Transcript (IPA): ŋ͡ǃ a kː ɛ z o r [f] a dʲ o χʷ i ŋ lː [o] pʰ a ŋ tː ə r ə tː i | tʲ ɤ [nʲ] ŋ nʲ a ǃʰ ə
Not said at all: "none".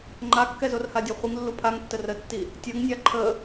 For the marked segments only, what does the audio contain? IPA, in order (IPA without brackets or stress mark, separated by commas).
h, u, none